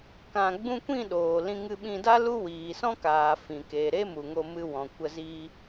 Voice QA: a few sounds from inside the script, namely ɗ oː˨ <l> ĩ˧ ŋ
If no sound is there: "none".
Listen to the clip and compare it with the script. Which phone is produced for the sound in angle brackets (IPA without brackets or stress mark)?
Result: l